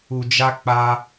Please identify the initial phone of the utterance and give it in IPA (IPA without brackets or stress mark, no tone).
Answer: u